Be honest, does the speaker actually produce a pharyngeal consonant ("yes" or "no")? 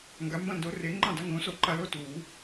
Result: no